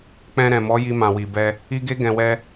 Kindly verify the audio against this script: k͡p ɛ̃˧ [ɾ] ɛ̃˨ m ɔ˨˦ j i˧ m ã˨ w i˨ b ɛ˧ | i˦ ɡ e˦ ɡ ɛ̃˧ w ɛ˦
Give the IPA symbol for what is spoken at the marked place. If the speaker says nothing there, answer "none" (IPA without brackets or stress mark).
ɾ